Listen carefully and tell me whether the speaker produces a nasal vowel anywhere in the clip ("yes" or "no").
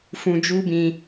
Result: yes